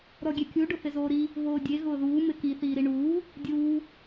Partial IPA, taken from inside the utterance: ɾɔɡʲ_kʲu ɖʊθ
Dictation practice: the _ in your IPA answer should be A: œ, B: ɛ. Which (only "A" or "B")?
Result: B